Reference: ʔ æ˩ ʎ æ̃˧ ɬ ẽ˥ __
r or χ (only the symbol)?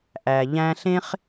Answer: χ